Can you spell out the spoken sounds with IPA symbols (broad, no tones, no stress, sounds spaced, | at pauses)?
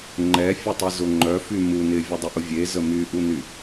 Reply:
ŋ͡ǃ ɛ fʲ ʊ tˤ e z ʊ ŋ͡ǃ œ f y m u n ɪ vʲ ə dˤ ɪ ʔ ʊ vʲ e z ə m y ʔ u n y